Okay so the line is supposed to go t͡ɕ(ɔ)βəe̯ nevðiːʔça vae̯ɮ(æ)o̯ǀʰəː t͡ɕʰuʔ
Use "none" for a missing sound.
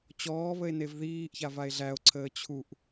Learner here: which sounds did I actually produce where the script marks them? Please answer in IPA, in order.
ɔː, æ

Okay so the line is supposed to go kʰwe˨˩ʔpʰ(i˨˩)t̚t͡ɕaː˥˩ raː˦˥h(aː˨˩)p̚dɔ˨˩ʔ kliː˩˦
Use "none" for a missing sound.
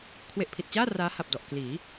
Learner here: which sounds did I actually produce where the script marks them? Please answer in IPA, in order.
i˨˩, a˨˩

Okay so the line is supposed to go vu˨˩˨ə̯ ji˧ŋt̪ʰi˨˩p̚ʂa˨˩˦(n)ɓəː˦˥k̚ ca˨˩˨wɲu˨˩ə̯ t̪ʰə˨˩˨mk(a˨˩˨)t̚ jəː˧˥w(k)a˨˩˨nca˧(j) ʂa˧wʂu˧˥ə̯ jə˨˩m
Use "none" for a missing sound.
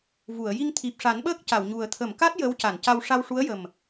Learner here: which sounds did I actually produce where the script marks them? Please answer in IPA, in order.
n, a˦˥, c, w

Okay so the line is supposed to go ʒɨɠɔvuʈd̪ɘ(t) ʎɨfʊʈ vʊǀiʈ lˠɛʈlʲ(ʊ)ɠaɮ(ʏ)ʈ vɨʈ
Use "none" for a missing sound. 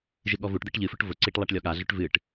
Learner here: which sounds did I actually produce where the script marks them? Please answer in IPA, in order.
ʈ, ɔ, ʏ

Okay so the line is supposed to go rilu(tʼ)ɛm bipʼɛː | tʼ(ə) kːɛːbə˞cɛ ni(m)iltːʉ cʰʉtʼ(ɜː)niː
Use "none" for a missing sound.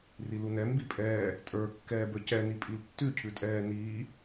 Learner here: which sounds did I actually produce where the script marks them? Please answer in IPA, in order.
n, ə˞, pʼ, ɛː

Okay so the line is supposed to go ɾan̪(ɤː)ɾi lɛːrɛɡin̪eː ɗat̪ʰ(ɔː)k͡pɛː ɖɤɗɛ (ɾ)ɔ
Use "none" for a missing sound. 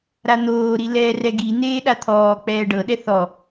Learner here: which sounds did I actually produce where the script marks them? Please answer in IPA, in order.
oː, ɔː, θ

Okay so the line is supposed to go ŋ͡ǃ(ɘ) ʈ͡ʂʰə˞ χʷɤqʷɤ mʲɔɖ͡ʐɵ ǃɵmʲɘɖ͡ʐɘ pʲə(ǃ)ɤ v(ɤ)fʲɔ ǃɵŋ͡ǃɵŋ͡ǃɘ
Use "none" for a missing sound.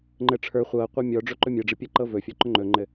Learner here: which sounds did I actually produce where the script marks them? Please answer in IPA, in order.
ɘ, ǃ, ɵ

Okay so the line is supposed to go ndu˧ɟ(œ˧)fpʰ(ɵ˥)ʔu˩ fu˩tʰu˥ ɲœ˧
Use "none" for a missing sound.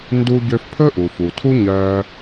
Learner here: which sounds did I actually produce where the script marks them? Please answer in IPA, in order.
ø˧, ɵ˥

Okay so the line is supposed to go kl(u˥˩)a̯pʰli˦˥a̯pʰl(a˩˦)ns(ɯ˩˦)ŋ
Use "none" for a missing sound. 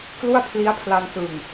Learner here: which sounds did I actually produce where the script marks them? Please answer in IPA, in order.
u˥˩, a˧, ɯ˨˩

